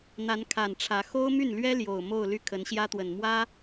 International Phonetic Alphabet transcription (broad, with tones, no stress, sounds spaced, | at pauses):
n̪ a˧˥ n kʰ a˨˩ n ʈ͡ʂʰ ä˧˥ x o˥ ʊ̯ m y˥˩ n l ɥ ɛ˥ l j o˨˩ ʊ̯ m o˥˧ ʊ̯ l y˥˩ kʰ ə˧˥ n ɕ j ä˥ t̪ w ə˨˩ n m w ä˥